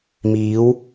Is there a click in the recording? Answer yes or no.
no